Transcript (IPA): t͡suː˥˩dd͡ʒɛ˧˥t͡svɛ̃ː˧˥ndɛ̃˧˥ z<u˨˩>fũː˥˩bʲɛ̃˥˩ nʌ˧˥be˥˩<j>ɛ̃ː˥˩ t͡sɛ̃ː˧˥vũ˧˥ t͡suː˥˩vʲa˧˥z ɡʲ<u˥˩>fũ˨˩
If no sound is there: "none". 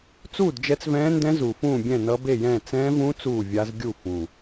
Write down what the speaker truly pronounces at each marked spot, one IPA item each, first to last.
u˨˩, j, u˥˩

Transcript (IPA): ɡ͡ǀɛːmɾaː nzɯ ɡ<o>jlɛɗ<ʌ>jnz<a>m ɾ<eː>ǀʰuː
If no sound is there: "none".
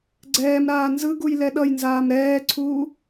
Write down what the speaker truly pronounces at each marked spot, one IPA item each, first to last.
u, ʌ, aː, ɛː

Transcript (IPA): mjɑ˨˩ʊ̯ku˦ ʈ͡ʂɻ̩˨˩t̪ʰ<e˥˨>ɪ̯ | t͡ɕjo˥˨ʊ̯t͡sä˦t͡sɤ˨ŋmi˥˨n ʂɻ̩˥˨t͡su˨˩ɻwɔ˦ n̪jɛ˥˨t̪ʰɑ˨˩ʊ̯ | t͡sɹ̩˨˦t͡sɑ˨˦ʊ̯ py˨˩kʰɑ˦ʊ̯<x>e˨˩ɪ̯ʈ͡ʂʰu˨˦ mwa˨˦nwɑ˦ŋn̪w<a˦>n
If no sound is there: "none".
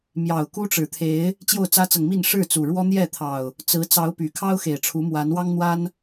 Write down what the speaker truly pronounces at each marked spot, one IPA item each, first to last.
e˨˦, x, a˦

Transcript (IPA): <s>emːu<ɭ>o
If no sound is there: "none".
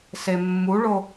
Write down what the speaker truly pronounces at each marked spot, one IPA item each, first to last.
s, ɭ

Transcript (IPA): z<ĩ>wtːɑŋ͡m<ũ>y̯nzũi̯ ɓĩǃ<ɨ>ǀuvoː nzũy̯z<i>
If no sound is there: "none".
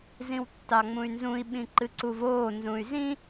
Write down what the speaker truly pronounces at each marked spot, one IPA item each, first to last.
ĩ, ũ, ɨ, ĩ

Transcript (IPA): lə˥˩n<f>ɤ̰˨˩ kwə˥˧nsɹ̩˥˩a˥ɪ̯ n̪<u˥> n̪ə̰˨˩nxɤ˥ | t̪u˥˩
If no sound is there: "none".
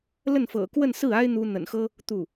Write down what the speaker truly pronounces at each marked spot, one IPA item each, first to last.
f, u˥

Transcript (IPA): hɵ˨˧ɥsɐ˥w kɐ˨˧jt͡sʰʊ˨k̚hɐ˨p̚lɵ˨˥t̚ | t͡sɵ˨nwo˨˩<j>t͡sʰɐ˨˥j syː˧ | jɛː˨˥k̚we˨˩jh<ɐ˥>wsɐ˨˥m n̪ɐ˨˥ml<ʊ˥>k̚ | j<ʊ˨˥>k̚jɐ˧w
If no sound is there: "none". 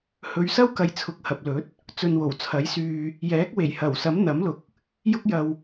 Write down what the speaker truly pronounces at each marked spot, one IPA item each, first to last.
w, ɐ˨˩, ʊ˨˥, ʊ˥

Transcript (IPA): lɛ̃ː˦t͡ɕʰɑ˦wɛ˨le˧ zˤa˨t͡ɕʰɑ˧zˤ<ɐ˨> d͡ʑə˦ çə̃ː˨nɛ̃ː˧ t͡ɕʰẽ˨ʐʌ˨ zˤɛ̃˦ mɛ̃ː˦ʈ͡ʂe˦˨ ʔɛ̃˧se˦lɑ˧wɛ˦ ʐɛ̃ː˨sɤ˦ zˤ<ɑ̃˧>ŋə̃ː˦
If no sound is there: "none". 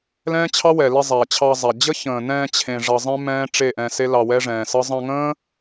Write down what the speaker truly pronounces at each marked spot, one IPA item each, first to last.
a˨, ɑ̃˧

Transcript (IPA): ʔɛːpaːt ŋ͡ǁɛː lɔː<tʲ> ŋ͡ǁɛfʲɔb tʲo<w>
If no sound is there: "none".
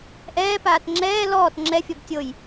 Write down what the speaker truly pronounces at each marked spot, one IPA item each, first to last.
t, j

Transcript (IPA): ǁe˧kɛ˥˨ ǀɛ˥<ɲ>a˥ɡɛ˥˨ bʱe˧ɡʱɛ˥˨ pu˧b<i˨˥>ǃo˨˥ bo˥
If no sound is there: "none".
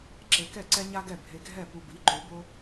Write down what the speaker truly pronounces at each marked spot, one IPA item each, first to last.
ɲ, i˨˥

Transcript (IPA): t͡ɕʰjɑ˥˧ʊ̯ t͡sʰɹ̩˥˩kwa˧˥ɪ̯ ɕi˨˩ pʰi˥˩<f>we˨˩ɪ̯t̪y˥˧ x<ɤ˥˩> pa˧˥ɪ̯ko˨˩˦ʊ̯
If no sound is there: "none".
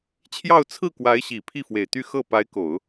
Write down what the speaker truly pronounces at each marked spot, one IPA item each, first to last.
f, ɤ˥˩

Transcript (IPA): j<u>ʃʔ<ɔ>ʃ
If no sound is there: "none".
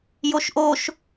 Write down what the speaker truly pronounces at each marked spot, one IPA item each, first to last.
o, o

